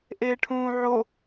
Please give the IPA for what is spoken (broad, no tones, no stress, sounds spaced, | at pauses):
ʔ eː ʈʰ ũː ʕ o